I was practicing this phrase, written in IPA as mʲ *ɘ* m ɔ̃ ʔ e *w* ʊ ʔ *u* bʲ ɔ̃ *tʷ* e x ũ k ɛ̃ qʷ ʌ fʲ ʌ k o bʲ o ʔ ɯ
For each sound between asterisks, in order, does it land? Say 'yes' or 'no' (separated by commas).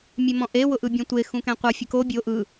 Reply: no, yes, no, yes